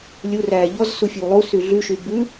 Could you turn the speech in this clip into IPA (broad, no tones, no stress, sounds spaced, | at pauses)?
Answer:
lʲ u r æː ʎ ɔ z s u fʲ o w lˠ u s y ɮ y ʃ y b ʉ